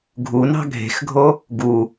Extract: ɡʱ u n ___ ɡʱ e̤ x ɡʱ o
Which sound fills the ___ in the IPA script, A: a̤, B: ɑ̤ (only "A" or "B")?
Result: B